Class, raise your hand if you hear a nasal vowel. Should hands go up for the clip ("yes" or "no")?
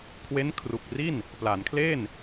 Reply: no